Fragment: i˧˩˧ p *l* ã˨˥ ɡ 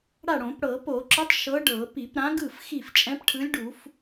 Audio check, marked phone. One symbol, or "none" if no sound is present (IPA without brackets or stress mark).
ɾ